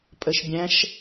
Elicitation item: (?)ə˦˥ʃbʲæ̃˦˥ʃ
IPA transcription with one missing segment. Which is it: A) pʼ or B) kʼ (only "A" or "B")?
A